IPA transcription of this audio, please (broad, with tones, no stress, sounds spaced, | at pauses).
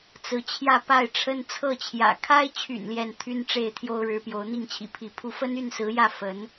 t͡s ɹ̩˧˥ t͡ɕʰ j ä˥˧ p a˥˩ ɪ̯ ʈ͡ʂʰ ə˥ n t͡sʰ ɤ˥˩ t͡ɕʰ j ä̰˨˩ kʰ a˥ ɪ̯ t͡ɕʰ y̰˨˩ n l j ɛ˥˩ n t̪ʰ y˥ n ʈ͡ʂ e˥˩ ɪ̯ t̪ʰ j o˥ ʊ̯ ɻ ɻ̩˧˥ p j o˧˥ ʊ̯ n̪ i˥˩ ŋ t͡ɕʰ ḭ˨˩ pʰ i˧˥ pʰ u˥˩ f ə˥ n y˥˩ n s ɹ̩˧˥ j ä˥˩ f ə˧˥ n